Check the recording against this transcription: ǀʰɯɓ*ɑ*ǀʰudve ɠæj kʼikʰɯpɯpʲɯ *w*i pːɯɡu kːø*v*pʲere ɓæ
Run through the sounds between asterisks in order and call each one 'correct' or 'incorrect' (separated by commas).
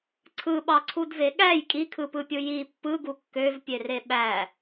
correct, incorrect, correct